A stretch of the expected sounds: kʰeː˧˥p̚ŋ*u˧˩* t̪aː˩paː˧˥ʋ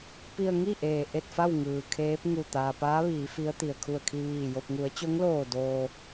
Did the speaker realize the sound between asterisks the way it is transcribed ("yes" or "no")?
yes